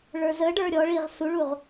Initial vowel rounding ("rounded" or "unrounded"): unrounded